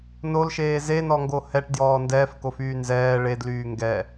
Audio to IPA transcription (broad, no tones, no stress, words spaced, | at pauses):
nolʃeː zenɔŋɡo hɛʈdjɔː ndɛːfkofyː nzɛː ɭedlyː ŋɡɛ